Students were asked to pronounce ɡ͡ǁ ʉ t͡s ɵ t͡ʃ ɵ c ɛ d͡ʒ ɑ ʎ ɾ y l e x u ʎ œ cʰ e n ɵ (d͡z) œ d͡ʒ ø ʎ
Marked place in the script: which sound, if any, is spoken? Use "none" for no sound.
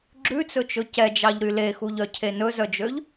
z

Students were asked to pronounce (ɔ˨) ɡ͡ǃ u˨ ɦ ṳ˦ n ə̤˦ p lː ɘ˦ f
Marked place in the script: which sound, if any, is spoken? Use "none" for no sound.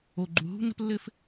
o˨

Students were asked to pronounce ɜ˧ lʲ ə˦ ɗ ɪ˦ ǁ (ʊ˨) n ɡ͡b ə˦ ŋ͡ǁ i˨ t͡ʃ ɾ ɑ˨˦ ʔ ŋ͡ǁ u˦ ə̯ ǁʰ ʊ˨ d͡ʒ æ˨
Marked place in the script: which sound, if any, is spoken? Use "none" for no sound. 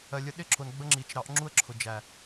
ʊ˨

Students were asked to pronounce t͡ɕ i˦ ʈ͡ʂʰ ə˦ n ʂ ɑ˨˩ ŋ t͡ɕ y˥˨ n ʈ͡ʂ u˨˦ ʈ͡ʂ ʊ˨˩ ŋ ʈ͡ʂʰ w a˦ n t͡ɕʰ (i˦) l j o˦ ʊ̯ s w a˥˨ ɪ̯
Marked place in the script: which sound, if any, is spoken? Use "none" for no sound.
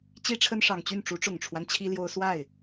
i˦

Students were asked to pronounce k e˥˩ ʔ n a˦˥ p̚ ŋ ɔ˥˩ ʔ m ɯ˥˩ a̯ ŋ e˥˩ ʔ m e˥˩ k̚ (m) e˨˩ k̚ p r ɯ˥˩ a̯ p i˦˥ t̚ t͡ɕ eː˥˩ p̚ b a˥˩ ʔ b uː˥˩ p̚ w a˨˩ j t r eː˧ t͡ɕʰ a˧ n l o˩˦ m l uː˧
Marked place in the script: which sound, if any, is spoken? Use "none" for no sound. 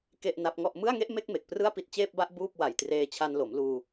m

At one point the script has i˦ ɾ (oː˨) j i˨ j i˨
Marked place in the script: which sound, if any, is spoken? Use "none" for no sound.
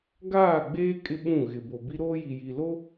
oː˦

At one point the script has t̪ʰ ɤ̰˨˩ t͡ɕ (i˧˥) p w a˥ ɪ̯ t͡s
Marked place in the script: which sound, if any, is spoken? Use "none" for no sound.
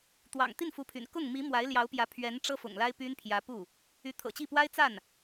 i˥˩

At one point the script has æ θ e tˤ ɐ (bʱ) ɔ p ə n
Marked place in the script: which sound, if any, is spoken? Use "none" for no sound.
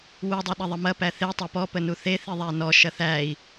p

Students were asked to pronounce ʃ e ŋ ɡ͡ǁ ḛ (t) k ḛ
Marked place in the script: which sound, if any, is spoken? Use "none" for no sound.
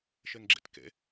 t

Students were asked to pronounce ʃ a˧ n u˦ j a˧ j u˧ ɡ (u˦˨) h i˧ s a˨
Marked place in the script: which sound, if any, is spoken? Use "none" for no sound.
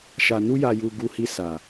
u˧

